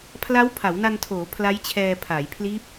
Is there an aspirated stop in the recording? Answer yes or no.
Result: yes